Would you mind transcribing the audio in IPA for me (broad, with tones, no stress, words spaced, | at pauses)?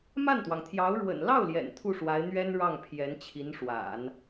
ma˥˩nt̪wɑ˩ŋt̪ʰjɑ˧˥ʊ̯ ɻwə̰˨˩n lɑ˥˩ʊ̯ ljɛ̰˨˩nt̪ʰu˥˩ʂwa˧˥ɪ̯ n̪ɥɛ˥n ɻɑ˥˩ŋpʰjɛ˧˥n t͡ɕʰi˧˥nʂwa̰˨˩˦n